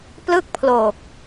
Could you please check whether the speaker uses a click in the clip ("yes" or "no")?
no